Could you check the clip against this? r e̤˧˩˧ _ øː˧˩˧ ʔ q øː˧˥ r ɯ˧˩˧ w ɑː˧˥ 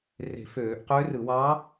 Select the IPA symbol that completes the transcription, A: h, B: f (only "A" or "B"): B